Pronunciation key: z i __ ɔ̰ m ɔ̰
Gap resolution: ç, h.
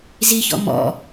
ç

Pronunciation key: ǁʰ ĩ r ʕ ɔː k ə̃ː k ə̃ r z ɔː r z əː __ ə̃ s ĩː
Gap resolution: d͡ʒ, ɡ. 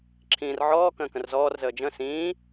d͡ʒ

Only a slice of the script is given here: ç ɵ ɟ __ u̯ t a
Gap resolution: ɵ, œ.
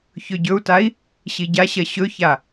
ɵ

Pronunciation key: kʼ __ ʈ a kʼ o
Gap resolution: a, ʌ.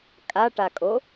a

